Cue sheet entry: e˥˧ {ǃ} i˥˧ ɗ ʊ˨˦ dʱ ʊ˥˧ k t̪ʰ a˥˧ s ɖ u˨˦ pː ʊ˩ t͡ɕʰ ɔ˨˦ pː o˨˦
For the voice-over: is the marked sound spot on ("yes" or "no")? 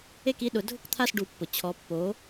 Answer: no